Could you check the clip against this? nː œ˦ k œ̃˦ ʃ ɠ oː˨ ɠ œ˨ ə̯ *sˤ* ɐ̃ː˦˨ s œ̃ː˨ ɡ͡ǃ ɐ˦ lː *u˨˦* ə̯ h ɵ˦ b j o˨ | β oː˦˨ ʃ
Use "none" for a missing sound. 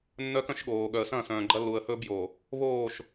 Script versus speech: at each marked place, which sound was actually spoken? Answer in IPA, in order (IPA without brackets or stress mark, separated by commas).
s, u˨